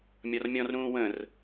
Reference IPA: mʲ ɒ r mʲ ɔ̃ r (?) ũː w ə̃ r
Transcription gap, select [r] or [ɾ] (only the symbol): ɾ